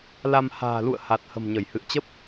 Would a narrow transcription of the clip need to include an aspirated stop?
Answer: no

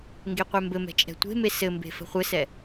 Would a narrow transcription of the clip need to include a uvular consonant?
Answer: yes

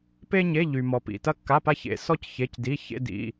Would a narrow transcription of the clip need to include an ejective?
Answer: no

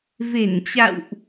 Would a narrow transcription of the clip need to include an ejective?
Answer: no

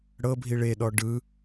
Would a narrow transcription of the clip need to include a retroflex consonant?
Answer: yes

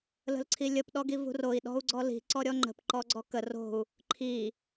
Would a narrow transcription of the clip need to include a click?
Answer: yes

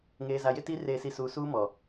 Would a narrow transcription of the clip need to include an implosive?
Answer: no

